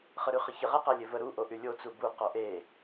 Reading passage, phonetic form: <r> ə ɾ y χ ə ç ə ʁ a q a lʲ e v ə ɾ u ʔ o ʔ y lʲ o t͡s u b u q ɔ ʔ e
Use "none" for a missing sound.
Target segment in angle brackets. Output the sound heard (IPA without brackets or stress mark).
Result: χ